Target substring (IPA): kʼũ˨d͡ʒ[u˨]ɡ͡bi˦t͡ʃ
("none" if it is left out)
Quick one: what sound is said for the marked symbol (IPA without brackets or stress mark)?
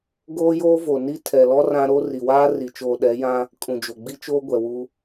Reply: o˨